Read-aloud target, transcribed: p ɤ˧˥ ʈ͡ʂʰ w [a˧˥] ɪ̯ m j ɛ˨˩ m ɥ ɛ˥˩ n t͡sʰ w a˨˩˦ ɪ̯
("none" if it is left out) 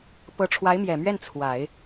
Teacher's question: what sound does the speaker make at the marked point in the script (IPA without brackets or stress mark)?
a˧˥